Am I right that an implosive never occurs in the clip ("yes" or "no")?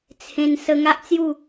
yes